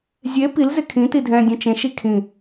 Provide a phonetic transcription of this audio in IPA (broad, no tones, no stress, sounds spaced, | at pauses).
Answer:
zʲ e p i l z ɪ kʰ ĩ t i dʱ ɛ̃ dʲ ɛ̃ t͡ʃ ẽ ʃ i kʰ ĩ